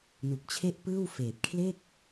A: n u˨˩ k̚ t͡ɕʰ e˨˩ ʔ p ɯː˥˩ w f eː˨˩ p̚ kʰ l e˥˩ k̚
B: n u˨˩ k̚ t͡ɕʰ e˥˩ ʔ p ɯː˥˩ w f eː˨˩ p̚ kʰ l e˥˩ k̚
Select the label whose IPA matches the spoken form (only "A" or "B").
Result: B